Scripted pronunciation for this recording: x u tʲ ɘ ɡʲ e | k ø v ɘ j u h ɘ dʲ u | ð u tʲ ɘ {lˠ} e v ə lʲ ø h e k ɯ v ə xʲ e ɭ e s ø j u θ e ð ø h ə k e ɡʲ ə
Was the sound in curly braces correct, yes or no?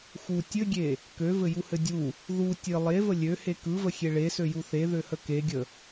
yes